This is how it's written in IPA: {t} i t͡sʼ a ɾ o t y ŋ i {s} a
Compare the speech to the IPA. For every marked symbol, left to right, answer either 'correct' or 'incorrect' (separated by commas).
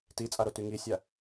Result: correct, incorrect